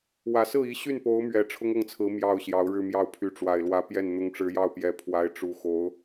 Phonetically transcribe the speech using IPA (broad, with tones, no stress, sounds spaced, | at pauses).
w ä˨˩ s ɹ̩˥˩ i˧˥ ɕ y˥˩ n p o˧˥ ʊ̯ m ɥ ɛ˨˩ ʈ͡ʂʰ ʊ˥ ŋ ɤ˥˩ ŋ t͡sʰ ɹ̩˧˥ m j ɑ˥˩ ʊ̯ ɕ j ɑ˧˥ ʊ̯ ɻ ɻ̩˥˧ m j ɑ˥˩ ʊ̯ pʰ y˧˥ ʈ͡ʂ w a˨˩ ɪ̯ l w ä˧˥ p j ɛ˥˩ n n̪ ʊ˧˥ ŋ ʈ͡ʂ ɻ̩˧˥ j ɑ˥˩ ʊ̯ p j ɛ˧˥ pʰ w a˧˥ ɪ̯ ʈ͡ʂ u˧˥ x o˧˥ ʊ̯